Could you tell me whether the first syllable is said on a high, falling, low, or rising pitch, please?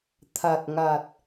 low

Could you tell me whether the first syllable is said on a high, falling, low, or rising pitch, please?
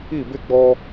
falling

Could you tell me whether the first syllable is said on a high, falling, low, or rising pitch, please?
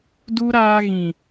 high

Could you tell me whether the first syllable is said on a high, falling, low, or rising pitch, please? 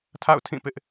falling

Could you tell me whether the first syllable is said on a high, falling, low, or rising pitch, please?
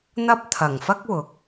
high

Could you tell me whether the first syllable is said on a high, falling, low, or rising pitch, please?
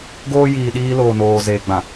high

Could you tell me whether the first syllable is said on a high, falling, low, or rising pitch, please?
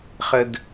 high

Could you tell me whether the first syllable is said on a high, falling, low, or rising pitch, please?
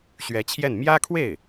rising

